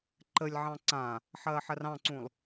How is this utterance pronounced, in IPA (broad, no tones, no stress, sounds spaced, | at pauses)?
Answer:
ǃ ə lʲ ʕ ɑ̃ ǀ ã | ħ ɐː ħ ɐ r ɑ̃ ǀ ũ lˠ